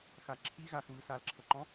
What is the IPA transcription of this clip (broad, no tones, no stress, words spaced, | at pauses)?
xa ǁʰi ɣaxβɯ salǁʰɤǃɔ̃